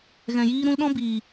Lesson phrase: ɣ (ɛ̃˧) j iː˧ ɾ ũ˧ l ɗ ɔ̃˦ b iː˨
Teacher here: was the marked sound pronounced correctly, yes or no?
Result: no